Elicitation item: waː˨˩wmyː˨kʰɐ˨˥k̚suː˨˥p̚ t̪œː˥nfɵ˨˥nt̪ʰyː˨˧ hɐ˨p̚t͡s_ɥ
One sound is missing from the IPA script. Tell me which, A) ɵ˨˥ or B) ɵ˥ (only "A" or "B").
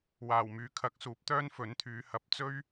B